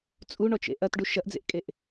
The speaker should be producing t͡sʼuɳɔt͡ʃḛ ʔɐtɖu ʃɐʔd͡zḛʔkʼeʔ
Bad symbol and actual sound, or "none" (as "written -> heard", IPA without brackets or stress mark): none